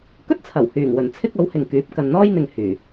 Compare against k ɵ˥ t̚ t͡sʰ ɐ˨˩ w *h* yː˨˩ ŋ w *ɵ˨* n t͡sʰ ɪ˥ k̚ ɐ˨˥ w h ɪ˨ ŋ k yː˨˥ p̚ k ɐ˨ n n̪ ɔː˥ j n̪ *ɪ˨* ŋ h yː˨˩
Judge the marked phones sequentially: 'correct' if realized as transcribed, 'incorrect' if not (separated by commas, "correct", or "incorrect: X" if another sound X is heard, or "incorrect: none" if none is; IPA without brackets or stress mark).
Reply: correct, incorrect: ɵ˨˩, correct